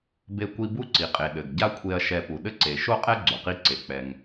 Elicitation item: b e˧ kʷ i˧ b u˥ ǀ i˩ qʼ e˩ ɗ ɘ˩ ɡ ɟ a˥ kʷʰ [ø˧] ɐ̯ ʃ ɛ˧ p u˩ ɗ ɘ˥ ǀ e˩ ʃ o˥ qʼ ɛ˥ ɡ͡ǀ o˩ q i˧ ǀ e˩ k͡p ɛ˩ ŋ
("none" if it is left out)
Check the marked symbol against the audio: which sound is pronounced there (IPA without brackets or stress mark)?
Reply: e˧